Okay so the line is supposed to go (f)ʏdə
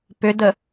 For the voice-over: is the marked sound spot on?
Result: no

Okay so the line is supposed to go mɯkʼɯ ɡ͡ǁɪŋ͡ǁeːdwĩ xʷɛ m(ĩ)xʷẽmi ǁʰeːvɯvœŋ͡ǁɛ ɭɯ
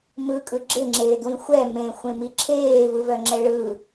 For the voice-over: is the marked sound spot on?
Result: no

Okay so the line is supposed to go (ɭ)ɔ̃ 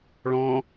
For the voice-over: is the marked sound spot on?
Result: yes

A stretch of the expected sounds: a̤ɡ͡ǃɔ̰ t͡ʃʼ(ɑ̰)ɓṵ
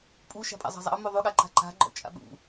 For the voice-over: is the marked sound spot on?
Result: no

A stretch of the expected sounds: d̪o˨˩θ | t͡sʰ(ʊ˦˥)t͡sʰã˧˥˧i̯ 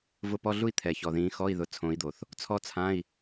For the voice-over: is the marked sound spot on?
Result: no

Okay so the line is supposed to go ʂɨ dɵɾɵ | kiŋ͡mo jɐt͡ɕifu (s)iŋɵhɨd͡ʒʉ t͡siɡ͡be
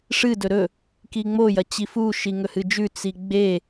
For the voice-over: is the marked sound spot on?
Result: no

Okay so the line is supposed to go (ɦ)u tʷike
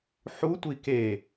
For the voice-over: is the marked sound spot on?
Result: no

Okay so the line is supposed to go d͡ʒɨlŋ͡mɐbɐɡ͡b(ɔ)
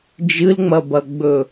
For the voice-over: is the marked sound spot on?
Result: no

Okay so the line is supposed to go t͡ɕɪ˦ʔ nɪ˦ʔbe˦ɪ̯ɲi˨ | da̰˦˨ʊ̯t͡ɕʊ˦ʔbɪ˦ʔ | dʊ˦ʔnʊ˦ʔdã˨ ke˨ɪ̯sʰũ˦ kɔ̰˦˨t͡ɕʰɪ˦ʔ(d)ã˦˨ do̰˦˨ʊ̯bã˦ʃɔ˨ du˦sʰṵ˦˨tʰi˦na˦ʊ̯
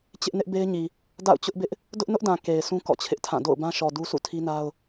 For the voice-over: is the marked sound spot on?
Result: no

